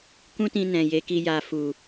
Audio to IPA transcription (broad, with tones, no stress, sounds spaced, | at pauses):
k ũ˦ t ĩ˧ n ɛ̃˨ j e˨˦ k i˧ j a˧ f u˨